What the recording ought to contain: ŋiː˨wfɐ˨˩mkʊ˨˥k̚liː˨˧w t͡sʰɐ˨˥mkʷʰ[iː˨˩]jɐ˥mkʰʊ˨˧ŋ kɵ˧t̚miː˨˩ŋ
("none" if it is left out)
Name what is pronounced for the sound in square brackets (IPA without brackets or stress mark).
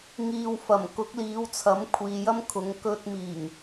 iː˨